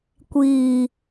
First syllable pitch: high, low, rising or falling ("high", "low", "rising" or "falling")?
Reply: low